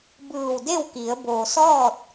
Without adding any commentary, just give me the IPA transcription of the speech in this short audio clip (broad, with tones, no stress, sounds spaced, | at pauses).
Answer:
b ɯː˧˩ w d e˥˨ w k i˩˧ ə̯ b o˩ s ɔː˥˨ t̚